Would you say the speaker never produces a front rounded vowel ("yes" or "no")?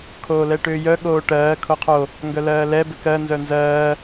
no